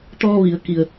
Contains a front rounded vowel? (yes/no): no